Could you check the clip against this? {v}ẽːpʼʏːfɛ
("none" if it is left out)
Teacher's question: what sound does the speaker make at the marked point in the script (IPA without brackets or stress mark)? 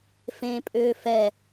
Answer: f